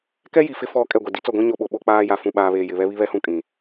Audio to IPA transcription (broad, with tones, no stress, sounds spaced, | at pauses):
k ɛ˦ j i˨ f ɪ˦ f ɔ˦˨ kʼ ɛ˦˨ ɡʷ ɛ˨ d i˦ t͡s ɔ˦˨ ɡʷ ĩ˦ ɲ o˦ ɓ o˨ ɓ o˦ k͡p aː˦ j a˨ f ũ˨ ɓ aː˨ β eː˨ j ɪ˨ β ɛ˦ β i˦ β ɛ˦ h ũ˦ kʼ ĩ˨